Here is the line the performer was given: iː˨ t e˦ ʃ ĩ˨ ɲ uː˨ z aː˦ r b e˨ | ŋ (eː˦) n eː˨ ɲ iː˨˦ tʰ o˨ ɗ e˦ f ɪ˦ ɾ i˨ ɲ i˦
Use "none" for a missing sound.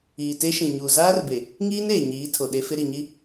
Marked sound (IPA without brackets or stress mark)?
iː˦